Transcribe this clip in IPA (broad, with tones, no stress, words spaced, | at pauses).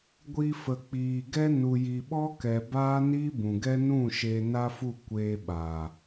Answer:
ɡʷi˧fə˨k͡piː˨ɡɛ˦ nu˨ji˨ɓɔ˦kɛ˨ baː˦ni˦bũ˨ɡɛ˦ nũ˦˨ ʃe˧na˦fu˦˨ kʷeː˧ ɓa˨